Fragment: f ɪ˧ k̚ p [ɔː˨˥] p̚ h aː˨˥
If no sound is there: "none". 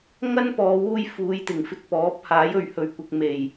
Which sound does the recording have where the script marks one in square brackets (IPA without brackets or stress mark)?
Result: ɔː˨˥